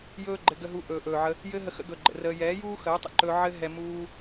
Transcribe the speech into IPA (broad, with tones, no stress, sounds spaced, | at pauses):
j ɵː˦ ɡ͡ǃ ɘ˧ ɡ ə˧ ɦ u˧ ʔ ɵː˨ ʔ ɵː˨ ʕ ə˧ | j ɘː˦ ɦ ə˧ x ə̰˧ ɡ ɵ˨ ɡ͡ǃ ə̰˨ r əː˧ j ɛː˨˦ j uː˦ x əː˨˦ tˤ ə̰˧ ǃ ɵː˧ ʕ ɘ˦ ɦ ɛ˧ m uː˦